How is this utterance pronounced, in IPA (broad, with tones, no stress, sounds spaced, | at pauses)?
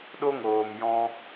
ɗ o˦ ŋ oː˨ m j ɔ̃˧